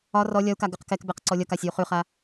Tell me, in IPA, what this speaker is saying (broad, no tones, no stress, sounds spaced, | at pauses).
ɒ r ɔ lʲ ɒ u̯ k a ɡ ʉ q k ɛ k b ɛ q ǀ ɔ lʲ ɒ k a sʲ ʉ u̯ χ ʉ χ a